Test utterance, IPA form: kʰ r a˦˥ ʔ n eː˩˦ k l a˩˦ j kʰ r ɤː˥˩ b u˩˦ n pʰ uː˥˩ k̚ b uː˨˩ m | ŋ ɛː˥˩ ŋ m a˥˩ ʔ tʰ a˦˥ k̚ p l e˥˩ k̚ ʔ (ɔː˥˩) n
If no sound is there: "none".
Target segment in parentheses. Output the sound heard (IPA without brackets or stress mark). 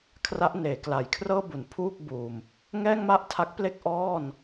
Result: ɔː˥˩